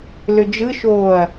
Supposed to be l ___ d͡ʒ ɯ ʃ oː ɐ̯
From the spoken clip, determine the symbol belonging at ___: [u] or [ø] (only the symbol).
ø